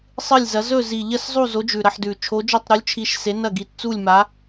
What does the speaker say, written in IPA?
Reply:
sˤɨ˦˨lʲzɐ˨˦ zɵ˦˨zi˨˩ʎɐ˦˨szˤu˦˨ zo˨˦d͡ʒʉ˨˩ ɾɐ˦˨ħdʉ˨˩ t͡ʃʰo˨˦d͡ʒo˦˨tˤɾu˨˦lʲ t͡ʃʰi˨˦ʃ se˨˦nɐ˦˨ ɡi˨˩tt͡su˦˨lʲma˨˦

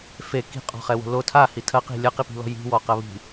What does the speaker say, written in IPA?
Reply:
fe ki̤qʼɔ̤χɛwo̤ lo tʰahi tʰɐqi̤ lʲɐqipi̤lɔ̤ ji̤wɔqɐ βi̤

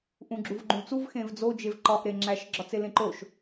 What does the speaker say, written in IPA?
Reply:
ʔũɡ͡ǁuvɡ͡ǃũlt͡suv xẽvd͡zo d͡ʒevǃɒʔ ɾeŋ͡ǁæʃ ɡ͡ǁɒt͡selẽǃoʃ

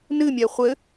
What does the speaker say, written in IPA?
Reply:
nɨmʲɛ χʷɘ

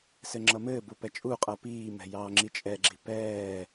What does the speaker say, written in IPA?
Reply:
sɘŋ͡ǁʌmɘːbu pɛt͡ʃʼuqʼʌː piːmɛ̤ jɑːŋ͡ǁit͡ʃʼɛɡ͡ǁi̤ pɛː

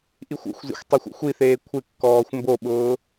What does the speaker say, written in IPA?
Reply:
ʔixʷṵxʷzḭxʷ tˤexʷṵxʷiθeː kʷʰɪkːɔːxʷ mboɓʊː

